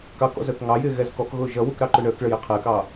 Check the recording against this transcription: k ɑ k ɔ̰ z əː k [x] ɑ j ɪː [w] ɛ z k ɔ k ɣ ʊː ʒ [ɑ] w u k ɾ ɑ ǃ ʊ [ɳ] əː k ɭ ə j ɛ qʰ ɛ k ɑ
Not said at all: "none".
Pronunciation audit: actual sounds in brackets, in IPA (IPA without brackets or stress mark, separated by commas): ŋ, ɣ, ʌ, ɳ